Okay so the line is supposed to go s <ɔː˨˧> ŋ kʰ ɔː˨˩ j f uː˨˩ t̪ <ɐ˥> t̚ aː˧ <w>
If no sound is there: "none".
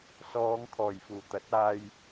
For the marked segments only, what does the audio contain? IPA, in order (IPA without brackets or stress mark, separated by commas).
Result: ɔː˨˧, ɐ˨˥, j